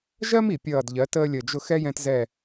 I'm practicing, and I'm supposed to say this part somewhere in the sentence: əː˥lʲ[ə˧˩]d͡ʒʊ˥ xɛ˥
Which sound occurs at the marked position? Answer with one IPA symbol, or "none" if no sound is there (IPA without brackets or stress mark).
ə˧˩